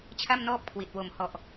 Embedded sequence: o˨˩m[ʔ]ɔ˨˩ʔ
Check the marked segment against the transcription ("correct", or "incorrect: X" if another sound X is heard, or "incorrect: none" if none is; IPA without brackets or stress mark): incorrect: h